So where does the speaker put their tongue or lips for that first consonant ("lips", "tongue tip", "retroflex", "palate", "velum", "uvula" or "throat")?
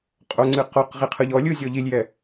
uvula